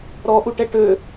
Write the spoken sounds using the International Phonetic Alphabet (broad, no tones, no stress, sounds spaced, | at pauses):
ɾ ɔ ʔ u ʈ ɛ ʈ ø